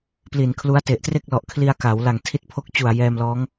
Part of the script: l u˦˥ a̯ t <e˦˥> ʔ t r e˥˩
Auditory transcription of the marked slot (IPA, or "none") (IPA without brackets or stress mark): e˨˩